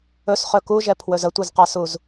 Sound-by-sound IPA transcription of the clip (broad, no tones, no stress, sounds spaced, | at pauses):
ɵ s χ ɵ k u ʒ ɛ pʰ w ɵ z ə tʷ ɨ z q a s u z